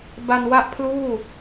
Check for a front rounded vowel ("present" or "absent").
absent